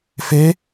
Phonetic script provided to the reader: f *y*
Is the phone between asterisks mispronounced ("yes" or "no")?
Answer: yes